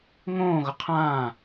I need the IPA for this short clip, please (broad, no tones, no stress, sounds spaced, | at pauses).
ŋ õː ɣ ʊ qʰ ãː